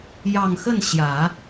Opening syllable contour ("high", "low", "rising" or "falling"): low